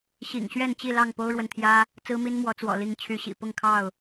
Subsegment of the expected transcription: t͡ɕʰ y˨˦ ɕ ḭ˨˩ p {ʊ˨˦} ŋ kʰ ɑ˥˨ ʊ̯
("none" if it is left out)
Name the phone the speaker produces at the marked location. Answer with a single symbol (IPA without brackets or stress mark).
ʊ˥˨